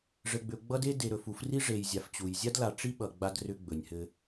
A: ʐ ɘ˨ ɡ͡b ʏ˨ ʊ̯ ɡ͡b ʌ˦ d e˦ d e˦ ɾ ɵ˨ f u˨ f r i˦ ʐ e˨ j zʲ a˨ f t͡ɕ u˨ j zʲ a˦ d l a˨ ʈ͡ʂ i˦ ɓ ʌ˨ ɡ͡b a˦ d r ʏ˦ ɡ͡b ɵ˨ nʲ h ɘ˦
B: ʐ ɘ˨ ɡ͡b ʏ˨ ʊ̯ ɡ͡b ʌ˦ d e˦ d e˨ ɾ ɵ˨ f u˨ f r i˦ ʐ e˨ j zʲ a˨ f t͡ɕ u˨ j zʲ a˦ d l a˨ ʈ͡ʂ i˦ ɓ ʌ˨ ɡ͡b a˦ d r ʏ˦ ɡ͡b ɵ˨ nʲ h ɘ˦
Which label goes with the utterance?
B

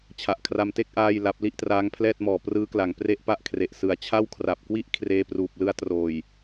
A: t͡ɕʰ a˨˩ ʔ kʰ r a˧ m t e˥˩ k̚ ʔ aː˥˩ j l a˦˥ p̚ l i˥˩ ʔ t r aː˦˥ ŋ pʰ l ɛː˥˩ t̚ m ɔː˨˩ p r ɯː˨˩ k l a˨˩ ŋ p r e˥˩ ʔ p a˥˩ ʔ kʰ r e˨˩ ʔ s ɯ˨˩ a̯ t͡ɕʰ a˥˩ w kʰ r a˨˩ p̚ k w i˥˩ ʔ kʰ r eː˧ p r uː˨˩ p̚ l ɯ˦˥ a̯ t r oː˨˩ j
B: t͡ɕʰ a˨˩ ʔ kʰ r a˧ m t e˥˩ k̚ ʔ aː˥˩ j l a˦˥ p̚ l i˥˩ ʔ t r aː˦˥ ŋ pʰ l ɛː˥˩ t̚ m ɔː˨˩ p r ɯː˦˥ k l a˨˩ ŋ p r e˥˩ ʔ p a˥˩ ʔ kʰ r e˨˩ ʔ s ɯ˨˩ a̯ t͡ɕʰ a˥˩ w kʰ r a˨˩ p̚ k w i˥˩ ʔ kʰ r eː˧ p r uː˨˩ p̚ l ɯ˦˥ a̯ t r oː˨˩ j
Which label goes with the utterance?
B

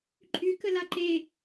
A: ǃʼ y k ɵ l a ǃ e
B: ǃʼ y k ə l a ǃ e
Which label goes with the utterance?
B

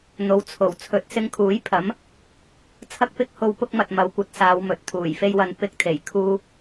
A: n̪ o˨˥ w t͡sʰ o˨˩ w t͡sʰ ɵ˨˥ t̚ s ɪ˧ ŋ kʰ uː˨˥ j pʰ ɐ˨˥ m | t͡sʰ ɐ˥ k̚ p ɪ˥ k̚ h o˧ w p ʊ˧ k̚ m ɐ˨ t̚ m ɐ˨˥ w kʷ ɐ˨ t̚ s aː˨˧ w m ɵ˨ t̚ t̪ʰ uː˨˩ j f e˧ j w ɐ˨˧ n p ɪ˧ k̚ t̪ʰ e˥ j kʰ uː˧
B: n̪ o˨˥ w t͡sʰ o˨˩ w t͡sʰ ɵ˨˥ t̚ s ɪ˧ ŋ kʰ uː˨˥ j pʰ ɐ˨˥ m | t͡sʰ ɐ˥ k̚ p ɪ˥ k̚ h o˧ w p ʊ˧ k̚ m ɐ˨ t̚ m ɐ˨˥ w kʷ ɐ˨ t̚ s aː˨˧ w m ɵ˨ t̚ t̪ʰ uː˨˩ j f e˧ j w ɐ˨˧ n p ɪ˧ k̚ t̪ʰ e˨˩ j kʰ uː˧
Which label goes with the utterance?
B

